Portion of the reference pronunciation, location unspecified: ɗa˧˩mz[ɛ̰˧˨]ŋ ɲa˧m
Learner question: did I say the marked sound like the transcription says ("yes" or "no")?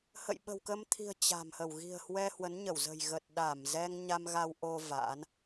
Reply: no